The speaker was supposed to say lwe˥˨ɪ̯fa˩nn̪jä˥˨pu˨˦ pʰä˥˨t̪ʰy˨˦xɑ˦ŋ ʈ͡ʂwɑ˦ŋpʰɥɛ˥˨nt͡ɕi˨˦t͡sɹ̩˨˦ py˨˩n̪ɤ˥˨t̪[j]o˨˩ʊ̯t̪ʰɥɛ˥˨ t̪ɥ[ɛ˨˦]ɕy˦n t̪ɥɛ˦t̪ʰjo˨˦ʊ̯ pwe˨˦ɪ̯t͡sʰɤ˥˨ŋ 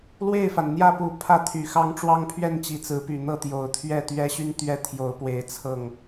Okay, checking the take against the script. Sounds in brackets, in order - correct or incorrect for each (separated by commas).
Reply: correct, incorrect